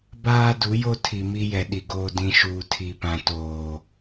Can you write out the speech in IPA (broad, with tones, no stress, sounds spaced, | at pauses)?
b aː˦ d u˨˦ j o˦ tʰ i˨ m i˦ j ɛ˨ ɗ i˨ ɡ oː˨ d ĩ˨ ʃ uː˨ tʰ i˨ p ã˨ t oː˨